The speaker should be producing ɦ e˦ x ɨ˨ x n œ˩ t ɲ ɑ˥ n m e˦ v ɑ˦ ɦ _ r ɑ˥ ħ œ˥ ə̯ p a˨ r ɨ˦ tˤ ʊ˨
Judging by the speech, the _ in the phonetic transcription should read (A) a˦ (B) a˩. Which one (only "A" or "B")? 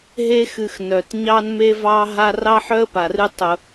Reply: A